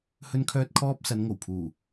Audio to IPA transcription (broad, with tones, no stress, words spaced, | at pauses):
hɵ˧nkʰœː˧t̚kʰɔː˧p̚ sɐ˨˧nŋo˨˩wpʰuː˨˩